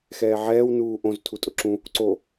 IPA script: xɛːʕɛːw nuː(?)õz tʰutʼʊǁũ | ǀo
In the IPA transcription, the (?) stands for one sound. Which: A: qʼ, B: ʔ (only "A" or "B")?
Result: B